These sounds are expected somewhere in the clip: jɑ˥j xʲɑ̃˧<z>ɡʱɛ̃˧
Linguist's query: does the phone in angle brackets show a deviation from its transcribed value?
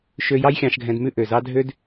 yes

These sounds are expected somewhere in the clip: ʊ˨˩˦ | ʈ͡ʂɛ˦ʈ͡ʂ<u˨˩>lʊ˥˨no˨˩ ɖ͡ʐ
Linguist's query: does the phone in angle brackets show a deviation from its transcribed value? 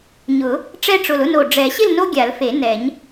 yes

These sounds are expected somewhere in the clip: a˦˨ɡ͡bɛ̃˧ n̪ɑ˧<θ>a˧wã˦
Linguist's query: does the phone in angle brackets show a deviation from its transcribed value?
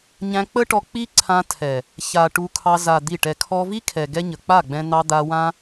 yes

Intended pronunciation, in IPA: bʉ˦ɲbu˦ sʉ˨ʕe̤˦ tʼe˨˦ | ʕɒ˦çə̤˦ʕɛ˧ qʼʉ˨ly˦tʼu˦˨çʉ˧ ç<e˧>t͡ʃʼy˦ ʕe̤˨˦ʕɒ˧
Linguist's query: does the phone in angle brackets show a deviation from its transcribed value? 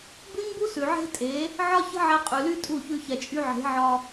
yes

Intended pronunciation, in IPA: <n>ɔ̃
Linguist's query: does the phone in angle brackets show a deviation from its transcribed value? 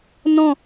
no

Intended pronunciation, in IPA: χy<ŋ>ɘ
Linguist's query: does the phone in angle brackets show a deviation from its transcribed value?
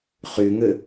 no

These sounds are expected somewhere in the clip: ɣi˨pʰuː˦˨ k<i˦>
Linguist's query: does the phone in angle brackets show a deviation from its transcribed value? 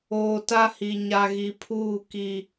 no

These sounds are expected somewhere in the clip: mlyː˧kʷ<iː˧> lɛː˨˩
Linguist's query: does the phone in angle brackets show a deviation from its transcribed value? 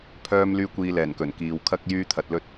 yes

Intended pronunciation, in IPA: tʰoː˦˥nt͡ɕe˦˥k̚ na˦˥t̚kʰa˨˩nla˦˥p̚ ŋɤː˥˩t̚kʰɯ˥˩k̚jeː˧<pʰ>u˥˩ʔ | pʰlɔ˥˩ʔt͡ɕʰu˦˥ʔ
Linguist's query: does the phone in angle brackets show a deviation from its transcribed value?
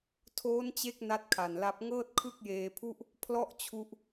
no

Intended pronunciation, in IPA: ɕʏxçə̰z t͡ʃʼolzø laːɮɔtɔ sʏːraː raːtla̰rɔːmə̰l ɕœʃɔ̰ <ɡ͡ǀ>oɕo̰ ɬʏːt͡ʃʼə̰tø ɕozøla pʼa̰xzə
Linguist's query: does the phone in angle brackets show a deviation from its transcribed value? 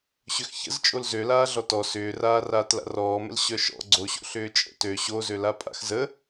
no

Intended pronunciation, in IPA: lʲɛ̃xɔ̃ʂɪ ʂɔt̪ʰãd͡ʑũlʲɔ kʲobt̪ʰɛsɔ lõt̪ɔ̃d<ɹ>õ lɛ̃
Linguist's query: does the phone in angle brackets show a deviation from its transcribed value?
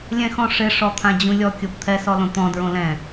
no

